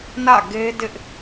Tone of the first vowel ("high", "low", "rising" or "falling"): falling